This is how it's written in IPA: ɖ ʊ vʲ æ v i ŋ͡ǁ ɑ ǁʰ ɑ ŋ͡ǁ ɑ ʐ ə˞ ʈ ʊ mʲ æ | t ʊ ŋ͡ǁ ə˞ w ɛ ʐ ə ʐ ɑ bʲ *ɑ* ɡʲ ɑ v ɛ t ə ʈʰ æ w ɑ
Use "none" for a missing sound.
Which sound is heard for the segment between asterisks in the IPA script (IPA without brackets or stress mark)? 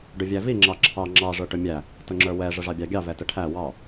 ɑ